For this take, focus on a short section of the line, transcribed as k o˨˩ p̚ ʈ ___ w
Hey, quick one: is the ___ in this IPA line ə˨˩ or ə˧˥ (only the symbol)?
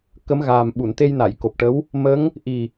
ə˧˥